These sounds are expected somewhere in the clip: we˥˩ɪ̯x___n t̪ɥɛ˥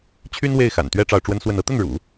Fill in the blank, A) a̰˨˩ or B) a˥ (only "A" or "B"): A